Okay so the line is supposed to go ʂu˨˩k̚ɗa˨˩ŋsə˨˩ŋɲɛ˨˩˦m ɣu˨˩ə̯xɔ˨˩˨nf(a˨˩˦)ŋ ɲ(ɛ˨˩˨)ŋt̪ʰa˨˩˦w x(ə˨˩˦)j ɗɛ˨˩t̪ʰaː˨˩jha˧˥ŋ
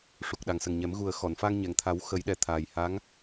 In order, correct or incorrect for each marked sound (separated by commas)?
incorrect, correct, correct